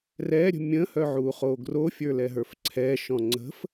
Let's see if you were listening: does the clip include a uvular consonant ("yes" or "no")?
yes